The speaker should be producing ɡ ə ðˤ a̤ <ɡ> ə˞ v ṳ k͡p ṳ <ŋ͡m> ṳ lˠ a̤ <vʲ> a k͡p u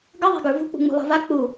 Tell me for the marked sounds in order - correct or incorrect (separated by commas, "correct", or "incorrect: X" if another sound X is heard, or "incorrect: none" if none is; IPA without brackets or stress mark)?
correct, correct, incorrect: v